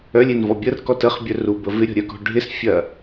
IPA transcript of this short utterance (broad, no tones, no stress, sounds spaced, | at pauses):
œ lʲ e n v ɔ bʲ ə r k ɔ t ə χ bʲ œ r u b ə v ɪ ɾʲ ɔ̤ ɾʲ œ k ɔ̤ ɖʱ ɪ s fʲ ɐ